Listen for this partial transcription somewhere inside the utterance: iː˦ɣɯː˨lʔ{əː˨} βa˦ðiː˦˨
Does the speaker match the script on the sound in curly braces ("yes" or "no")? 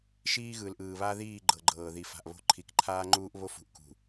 no